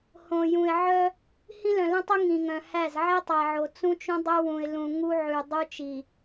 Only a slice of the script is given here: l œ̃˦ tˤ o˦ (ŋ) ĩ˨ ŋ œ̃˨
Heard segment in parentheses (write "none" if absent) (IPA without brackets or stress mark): ŋ